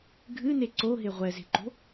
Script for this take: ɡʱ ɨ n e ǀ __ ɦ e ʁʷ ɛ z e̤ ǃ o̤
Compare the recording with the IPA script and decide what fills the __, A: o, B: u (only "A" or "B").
A